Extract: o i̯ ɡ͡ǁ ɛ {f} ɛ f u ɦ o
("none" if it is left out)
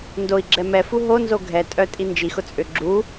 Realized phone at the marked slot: m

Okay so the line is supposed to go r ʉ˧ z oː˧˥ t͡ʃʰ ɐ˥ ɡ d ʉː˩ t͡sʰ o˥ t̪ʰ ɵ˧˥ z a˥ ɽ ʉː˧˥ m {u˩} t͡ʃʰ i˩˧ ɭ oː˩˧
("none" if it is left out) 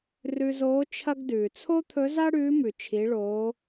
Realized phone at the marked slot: ʉ˩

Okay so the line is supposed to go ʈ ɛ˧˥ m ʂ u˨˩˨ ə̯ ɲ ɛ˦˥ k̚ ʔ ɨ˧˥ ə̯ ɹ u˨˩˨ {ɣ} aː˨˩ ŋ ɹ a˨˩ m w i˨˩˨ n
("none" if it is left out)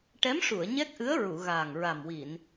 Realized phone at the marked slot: ɣ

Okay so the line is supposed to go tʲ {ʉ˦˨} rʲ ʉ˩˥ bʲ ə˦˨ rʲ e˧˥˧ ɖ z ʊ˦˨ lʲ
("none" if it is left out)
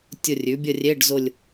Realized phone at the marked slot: ʊ˦˨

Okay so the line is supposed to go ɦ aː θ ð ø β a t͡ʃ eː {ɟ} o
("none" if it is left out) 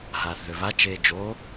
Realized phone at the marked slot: d͡ʒ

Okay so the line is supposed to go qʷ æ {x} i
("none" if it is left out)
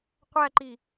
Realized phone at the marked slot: ǃ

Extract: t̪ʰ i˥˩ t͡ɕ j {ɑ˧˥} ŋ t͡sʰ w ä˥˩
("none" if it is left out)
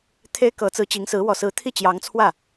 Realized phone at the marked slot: ɑ˧˥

